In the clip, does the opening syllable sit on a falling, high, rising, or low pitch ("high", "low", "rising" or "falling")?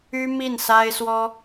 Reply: high